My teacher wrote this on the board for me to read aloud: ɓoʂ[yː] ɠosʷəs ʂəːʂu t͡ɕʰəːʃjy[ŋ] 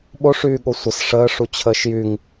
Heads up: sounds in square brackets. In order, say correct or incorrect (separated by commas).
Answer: correct, correct